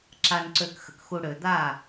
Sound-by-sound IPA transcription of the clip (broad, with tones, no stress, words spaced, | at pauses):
ǁa˨nǀø˨kxə̰˨kxu˨ ɽø˨d̪a˦˨